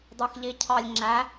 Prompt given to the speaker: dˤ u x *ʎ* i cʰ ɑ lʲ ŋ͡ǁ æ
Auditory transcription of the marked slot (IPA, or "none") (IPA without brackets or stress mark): ʎ